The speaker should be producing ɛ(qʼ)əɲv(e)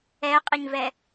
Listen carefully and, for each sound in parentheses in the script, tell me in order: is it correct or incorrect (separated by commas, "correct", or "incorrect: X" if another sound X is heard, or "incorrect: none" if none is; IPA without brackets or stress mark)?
correct, incorrect: ɛ